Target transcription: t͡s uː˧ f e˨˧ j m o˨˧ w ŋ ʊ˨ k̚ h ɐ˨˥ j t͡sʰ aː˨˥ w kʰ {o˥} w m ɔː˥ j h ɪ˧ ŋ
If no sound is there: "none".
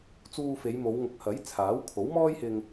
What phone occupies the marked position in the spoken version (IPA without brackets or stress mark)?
o˨˥